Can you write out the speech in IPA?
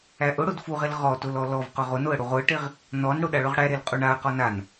æ ʔ ʊ ɽ ʊ d f u ʁ e l ʁ ɔ t ʊ l ɔ l ɔ v q ʊ ʁ ʊ n ʊ ə̯ ɽ u ʁ ʊ ə̯ ʈ e ʁ | n ɔ n ɽ ʊ ɗ a ɭ ʊ ʁ ɽ æ ɾ e l qʼ u ɳ a ə̯ q ɔ n a n

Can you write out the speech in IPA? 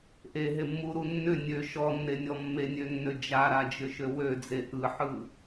ʔ e ɦ e mː u ɾ u nː ʏ nʲ ø ʃ ɔ nː e nʲ ɔ mː e nʲ ø nː ø d͡ʒ a ɾ a d͡ʒ ʏ ʃ ø w ø d͡z e ʔ ɯ ħ ɯ

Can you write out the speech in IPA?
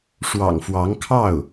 ʂ w ɑ̰˨˩ ŋ f w ɑ˧˥ ŋ kʰ ɑ˥˩ ʊ̯

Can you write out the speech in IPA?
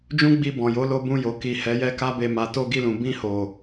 d͡ʒ ũ˦ ɡ͡b i˧ b ɔ̃˨ j o˨˦ l o˧ b ũ˧ j o˨ k i˨ h ɛ˨˦ j ɛ˦ k a˦ b e˧ m a˨ t o˧ ɡ i˧ l ũ˨ b ĩ˧ h o˨

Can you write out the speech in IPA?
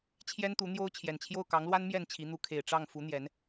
t͡ɕʰ j ɛ˦ n t̪ u˨˦ n̪ j o˦ ʊ̯ t͡ɕʰ j ɛ˨˩ n t͡ɕʰ j o˥˨ ʊ̯ k ɑ˨˦ ŋ l w a˦ n m j ɛ˥˨ n t͡ɕʰ i˨˦ n̪ u˨˦ kʰ e˨˩ ɪ̯ ʈ͡ʂ ɑ˥˨ ŋ f u˨˦ n̪ j ɛ˨˦ n

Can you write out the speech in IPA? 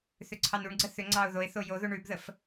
θ ʏ ǀʰ ɑ n u ɳ ɡ͡ǀ ə θ ʏ ŋ͡ǀ ɑ ʊ̯ ð o ɪ̯ θ o j o ð o ɳ ʉ b ð ə f

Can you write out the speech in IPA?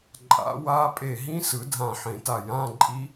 ǃʼ a̰˨˩˦ w a˦˥ pʼ e˧˩ ɦ ĩ˦˥ s ɯ˨˩˦ dʱ ã˧˩ ħ ẽ˨˩˦ t a˧˩ j ã˧˥˧ ǃʼ i˦˥

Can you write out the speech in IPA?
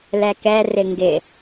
l ɛ k ɛ r ɪ ŋ ɡ ɪ

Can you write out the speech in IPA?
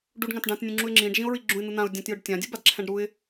ɖ u ɖ ŋ ã t ɖ ã t nʲ ũ ŋ͡ǁ u ɪ̯ ŋ͡ǁ ĩ ɖ ʒ ĩ ʊ̯ ɹ i ɡ͡ǁ ũ ɪ̯ n̪ ɯ n̪ ã ʊ̯ dʲ ã t j ɯ ɖ tʲ ã dʲ ɯ b a d ǁʰ ɛ̃ ɖ ɾ u ɪ̯

